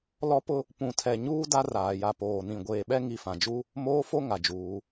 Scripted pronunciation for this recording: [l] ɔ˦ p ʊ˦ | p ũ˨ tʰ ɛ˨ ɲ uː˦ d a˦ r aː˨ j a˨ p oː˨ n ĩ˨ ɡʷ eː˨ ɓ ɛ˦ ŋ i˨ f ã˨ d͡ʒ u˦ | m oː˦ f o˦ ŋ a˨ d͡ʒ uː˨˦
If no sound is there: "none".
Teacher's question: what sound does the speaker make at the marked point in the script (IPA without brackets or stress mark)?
l